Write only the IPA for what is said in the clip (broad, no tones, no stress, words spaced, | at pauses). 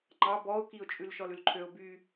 ŋ͡ǃɑ bɔʊ̯kiʊ̯t͡ʃʼʉl ʃɔlʉlǃʰøʊ̯ by